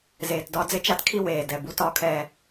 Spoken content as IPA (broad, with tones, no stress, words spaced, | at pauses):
zeː˨tdɒ˦ d͡zɪ˦t͡ʃa˦tkʰi˦ weː˨ dɛ˨ bu˦tɒː˦kʰɛː˦